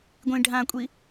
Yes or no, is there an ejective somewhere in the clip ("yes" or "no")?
yes